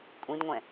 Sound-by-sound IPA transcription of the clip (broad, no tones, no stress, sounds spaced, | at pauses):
kʷʼ ĩ d ŋʷ ɛ̃